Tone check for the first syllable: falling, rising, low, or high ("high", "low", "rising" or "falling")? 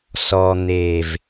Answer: low